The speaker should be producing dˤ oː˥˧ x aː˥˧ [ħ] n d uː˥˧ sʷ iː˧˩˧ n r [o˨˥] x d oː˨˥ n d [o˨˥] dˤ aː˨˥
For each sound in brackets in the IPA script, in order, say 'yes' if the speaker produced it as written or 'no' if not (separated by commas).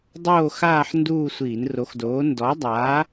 yes, yes, no